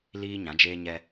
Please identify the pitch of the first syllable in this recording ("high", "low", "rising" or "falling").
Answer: high